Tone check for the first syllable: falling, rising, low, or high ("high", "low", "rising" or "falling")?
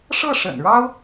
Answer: falling